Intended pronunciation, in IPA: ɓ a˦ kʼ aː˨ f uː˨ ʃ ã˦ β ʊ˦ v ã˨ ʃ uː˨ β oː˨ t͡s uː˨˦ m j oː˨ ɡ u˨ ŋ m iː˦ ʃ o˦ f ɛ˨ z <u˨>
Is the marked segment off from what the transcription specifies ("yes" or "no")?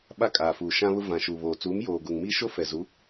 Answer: yes